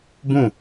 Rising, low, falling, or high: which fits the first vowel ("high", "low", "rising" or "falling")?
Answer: falling